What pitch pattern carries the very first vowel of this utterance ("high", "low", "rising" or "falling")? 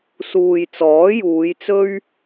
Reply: low